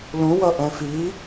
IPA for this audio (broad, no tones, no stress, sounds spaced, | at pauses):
l ũ w ʌ ʔ ɛ̃ f i